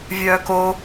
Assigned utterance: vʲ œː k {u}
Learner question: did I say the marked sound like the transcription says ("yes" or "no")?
no